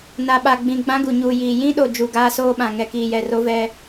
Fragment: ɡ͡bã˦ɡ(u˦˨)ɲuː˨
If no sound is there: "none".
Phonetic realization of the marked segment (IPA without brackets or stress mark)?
u˨